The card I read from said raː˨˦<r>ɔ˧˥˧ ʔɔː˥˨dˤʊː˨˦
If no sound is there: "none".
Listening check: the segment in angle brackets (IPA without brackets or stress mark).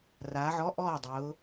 ʕ